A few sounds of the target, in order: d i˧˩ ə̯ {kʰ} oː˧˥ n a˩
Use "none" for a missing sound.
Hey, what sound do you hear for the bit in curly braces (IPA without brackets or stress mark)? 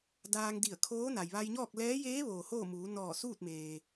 kʰ